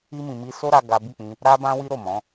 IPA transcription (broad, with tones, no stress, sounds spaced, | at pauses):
i˦ m ĩ˧ m i˦ s o˦ ɾ a˧ ɡ a˦ b i˦˨ k͡p ĩ˧ | ɾ a˦ b ã˦ w i˦ ɾ o˦˨ m ɔ̃˨˦